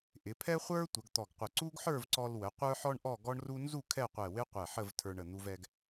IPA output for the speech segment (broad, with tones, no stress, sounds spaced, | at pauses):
ʔ ɪ˩˧ pʰ ɛ˥ χʷ ə˞˥ tʷ ə˩˧ ɡ t̪ ɔ˧˩ ɡ qʷ ə˧˩ ǀ u˥ ɡ ħ ə˞˥˧ v ǀ ɔ˧ l w ə˩˧ qʷ ə˞˥ ħ ɔ˥ ɳ ʔ ɔ˥˧ ɡ ɔ˥ ɳ r u˥ n z u˥˧ kʰ ɛ˥˧ qʷ ɛ˧˩ w ɪ˥ qʷ ɛ˧˩ ħ ə˥˧ v tʰ ə˞˧ ɳ ə˧˩ n̪ u˧ v ɛ˧ ɡ